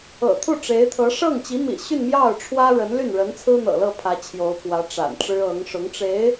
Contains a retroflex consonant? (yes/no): yes